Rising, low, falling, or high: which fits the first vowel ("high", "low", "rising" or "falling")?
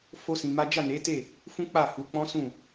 high